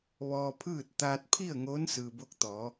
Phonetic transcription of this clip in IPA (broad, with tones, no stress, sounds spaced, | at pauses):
ʋ ɔː˧ pʰ ɯː˥˨ t̚ t̪ aː˧ t̚ pʰ i˥˨ ə̯ ŋ oː˧˥ n s ɯː˩ b o˧ k̚ t̪ ɔː˩˧